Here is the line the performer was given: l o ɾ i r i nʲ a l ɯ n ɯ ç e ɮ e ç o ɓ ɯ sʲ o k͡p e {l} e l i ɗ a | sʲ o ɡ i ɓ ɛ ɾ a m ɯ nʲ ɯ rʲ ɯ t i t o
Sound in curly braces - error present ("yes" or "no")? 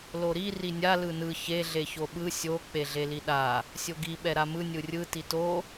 yes